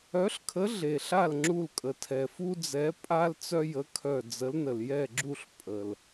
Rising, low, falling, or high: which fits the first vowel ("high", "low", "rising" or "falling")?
rising